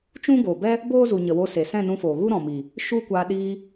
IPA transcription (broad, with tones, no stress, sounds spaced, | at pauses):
t͡ʃ ũ˦ ɡ oː˨ b ɛ˦ | b oː˦ z u˨ ɲ ə˨ w o˧ s e˨ s ɛ̃˦˨ n ũ˧ f oː˨ ɣ u˦ ɾ ɔ̃˨ m iː˨ | ʃ u˦ kʷ aː˧ ɗ iː˧